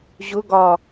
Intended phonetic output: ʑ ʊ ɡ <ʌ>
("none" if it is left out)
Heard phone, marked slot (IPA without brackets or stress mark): ɒ